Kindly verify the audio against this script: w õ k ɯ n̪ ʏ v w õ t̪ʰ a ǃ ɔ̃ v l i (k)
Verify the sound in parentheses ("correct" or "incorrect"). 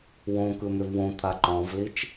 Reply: incorrect